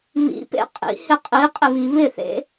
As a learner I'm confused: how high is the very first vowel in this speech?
high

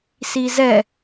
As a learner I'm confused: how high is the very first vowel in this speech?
high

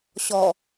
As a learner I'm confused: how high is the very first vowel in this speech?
mid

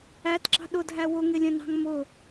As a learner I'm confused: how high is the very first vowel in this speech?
low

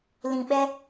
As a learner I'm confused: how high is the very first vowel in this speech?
high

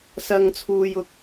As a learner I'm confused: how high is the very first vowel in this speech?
low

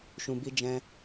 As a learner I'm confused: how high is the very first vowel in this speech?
high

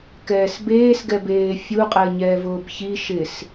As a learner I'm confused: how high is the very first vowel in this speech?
mid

